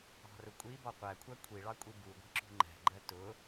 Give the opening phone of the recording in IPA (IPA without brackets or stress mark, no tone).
ɑ̤